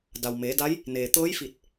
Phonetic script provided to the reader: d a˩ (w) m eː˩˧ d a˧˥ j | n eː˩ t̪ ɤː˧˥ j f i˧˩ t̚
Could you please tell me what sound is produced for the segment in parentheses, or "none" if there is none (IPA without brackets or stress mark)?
w